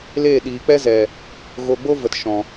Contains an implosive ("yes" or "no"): yes